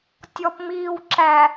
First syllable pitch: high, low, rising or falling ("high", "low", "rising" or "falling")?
low